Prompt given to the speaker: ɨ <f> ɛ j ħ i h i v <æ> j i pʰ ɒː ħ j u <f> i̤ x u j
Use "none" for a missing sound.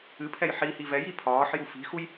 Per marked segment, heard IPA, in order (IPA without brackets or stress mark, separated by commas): pʰ, ɛ, f